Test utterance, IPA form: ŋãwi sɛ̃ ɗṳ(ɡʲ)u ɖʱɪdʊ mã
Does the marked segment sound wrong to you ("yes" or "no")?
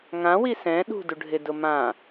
yes